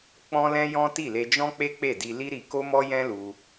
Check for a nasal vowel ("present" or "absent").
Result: present